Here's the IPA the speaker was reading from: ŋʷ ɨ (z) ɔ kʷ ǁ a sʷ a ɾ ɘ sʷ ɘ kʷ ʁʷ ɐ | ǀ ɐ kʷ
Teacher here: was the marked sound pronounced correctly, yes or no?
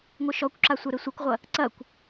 no